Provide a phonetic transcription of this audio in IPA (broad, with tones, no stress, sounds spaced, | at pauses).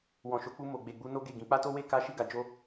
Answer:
w ɔ̃˨ ʃ o˨˦ k͡p u˧ m o˨ ɡ͡b e˨ ɡ͡b u˨˦ n o˦ ɡ e˦˨ ɡ ĩ˨˦ k͡p a˦ t o˦ w e˦ k a˧ ʃ i˧ ɡ a˨ d͡ʒ o˧